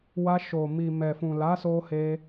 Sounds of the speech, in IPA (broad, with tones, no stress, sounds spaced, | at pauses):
w a˧ ʃ o˨ m i˨ m ɛ˨ f ũ˨ l a˨˦ s o˧ h e˧